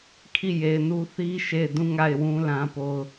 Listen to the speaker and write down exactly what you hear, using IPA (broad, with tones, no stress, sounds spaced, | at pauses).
kʰ i˦˨ j e˨ ɪ̯ n u˦ θ i˦ ʃ e˦˨ ɪ̯ d ũ˦ ŋ a˦˨ ɪ̯ w ũ˦ l ã˦ p o˦ ʊ̯